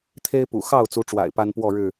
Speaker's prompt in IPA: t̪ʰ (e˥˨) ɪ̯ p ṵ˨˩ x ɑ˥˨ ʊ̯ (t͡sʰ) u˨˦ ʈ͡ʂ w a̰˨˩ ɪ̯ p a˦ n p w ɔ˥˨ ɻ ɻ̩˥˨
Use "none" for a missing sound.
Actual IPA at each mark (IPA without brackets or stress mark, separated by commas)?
e˦, t͡s